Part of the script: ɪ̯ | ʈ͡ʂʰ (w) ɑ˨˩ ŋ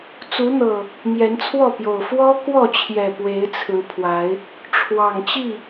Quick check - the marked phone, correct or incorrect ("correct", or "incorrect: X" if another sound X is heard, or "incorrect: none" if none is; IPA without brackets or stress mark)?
correct